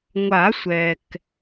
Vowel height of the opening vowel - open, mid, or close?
open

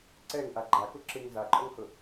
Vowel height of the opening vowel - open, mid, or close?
mid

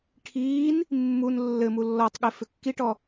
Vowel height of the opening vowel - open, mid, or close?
close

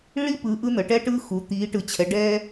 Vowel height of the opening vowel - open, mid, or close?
close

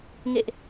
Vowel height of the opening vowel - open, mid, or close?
mid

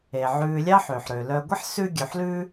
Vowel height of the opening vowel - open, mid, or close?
mid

